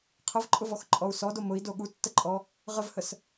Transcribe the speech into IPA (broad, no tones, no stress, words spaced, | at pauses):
qʰəvǃʼʊvɔxǃʼɔu̯ sɔdo mʊi̯do ɠutːəǃʼɔ | ʁəvhəs